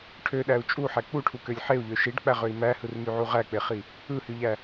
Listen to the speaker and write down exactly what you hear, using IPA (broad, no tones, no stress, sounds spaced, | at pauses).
ʈʰ ø ɗ æ u̯ t͡ʃʼ u ħ æ k͡p u ʈʰ u k ø lʲ ħ e u̯ ʎ ø ʃ i ɖ k͡p æ ʁ ø i̯ m æ h ɯ r m y ʕ u ʁ æ k͡p e χ i | ɯ h y ʎ æ